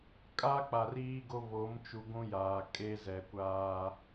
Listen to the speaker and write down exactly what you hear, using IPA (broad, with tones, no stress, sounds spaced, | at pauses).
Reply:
kʼ a˦ k͡p a˨ r iː˦ ɡ o˦ β o˨˦ m t͡ʃ u˨ ɡʷ ũ˦ j aː˨ kʼ e˦ z ɛ˨ kʷ aː˦